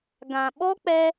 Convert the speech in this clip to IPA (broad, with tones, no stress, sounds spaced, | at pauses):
ɡ ã˨ ɓ ɔ˦ k͡p ɛ˧